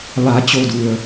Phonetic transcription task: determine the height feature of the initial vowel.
low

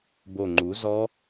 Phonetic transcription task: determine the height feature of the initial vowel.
mid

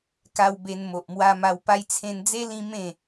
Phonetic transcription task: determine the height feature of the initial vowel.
low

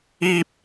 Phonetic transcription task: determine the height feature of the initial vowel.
high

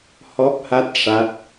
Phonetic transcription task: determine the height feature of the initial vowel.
mid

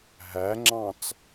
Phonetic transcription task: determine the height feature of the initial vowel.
low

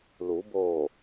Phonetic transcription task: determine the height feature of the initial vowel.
high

